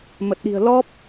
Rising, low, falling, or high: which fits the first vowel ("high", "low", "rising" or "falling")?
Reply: low